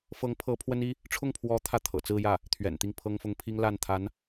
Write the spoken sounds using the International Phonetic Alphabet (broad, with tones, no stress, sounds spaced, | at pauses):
f ɤ˧˥ ŋ pʰ ɤ˧˥ pʰ w ə˥ n i˥ | ʈ͡ʂʰ ʊ˥˩ ŋ pʰ w ɔ˧˥ t̪ʰ ä˥˩ t̪ʰ ɤ̰˨˩ t͡s ɹ̩˥˧ j ä˥˩ | t̪ʰ ɥ ɛ̰˨˩ n t̪ i˥˩ ŋ pʰ ɤ˥ ŋ f ʊ˥ ŋ pʰ i˥ ŋ l a˥˩ n t̪ʰ a˧˥ n